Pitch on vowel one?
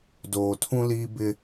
low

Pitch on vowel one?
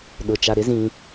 low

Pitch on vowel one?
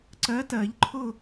rising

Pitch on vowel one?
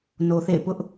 low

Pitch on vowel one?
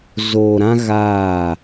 low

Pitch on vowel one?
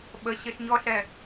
low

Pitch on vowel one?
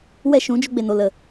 falling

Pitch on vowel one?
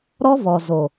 high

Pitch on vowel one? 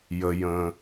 low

